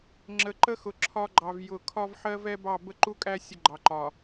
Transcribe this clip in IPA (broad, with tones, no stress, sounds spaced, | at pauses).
ŋ͡ǁ ə˨ ǃ ə˦ x ʊ˨ ǁʰ ɒ˦ ɡ͡ǃ ɑ˨ v j ʊ˨ kʰ ɒ˦ v ħ ɜ˦ v ɛ˦ b ɑ˦˨ b ə˦˨ ǃ u˦ kʼ æ˦ sʲ ə˦ ɡ͡ǃ ɑ˨ ǃ ɒ˨